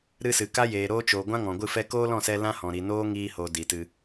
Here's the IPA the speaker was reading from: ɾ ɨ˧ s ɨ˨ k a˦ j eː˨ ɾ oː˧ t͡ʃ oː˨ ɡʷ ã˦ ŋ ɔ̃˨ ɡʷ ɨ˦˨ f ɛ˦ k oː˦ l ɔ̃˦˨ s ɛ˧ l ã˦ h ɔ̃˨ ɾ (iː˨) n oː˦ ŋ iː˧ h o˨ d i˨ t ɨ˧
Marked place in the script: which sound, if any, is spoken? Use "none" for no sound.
i˨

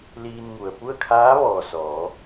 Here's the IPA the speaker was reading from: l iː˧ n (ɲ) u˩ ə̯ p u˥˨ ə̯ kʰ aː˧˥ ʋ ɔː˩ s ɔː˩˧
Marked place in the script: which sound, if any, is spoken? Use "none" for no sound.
ŋ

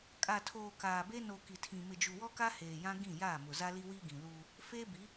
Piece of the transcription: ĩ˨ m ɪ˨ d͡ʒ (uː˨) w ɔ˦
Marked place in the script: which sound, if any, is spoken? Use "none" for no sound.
u˨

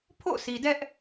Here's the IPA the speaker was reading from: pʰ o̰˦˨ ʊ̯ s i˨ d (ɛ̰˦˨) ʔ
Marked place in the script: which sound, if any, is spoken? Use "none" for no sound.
ɛ˦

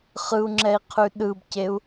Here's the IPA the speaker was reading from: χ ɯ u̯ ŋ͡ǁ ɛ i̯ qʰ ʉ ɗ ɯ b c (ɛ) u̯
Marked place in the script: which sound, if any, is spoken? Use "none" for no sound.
e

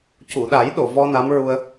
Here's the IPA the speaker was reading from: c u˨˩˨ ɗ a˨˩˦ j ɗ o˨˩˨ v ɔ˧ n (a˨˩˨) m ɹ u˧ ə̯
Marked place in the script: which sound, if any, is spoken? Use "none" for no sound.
a˧˥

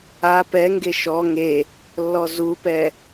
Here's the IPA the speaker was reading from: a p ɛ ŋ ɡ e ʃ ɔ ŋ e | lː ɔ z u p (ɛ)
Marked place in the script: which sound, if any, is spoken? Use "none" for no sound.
ɛ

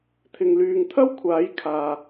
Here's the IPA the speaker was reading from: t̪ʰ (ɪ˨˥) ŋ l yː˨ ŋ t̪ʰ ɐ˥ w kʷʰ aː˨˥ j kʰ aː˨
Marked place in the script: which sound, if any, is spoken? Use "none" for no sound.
ɪ˨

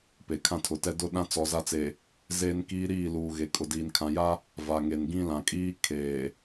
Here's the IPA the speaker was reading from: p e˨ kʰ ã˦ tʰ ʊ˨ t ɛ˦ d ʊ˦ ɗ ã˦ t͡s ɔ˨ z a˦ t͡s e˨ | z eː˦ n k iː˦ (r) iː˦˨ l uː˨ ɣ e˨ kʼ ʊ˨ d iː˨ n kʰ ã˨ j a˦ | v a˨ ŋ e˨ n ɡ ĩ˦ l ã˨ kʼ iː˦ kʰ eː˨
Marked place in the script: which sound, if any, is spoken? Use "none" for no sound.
ɾ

